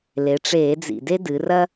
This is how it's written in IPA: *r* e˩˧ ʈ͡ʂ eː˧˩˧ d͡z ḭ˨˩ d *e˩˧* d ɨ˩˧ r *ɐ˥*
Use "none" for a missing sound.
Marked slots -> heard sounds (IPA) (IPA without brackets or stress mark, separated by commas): l, e˥, ɐ˥